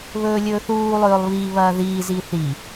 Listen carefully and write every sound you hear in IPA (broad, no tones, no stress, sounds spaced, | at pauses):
β ɵː lʲ ɵː θ uː lˠ ɵː lˠ β i β ɐː ð iː z i θ i